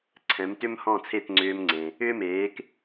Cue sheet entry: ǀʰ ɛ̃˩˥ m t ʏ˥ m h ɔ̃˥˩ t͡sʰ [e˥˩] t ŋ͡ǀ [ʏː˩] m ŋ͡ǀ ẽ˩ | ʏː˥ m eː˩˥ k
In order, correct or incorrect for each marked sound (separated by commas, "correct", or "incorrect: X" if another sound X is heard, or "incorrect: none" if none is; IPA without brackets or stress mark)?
correct, incorrect: ʏː˧